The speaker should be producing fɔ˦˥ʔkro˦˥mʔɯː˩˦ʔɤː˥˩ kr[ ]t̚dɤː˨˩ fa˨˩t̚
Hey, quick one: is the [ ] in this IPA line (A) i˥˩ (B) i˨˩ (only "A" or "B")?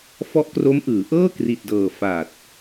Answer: B